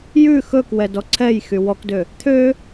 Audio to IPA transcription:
j ʉ x ɵ k w ɛ d ɔ ǀʰ ɛ j x y w ɔ k d ø | t̪ʰ ø

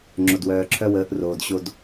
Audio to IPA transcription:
ŋ͡ǁ o˨ d w œː˨ ǁʰ œ˦ w əː˨˦ ʔ r oː˨ d ɕ o˦ d

